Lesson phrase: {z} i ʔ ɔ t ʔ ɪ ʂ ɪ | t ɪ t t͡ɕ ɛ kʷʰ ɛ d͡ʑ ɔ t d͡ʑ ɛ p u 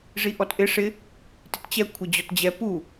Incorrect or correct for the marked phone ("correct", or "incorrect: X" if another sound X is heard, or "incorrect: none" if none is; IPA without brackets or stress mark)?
incorrect: ʐ